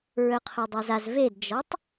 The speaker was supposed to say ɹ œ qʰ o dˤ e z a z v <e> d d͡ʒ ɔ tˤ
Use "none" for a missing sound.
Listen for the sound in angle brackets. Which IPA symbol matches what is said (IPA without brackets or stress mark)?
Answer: e